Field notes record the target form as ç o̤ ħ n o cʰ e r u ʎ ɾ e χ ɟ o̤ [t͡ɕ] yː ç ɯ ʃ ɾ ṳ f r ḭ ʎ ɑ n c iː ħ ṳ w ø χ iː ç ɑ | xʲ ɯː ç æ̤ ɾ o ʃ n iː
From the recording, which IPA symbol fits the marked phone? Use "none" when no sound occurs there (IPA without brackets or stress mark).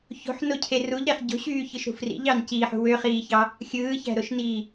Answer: ɕ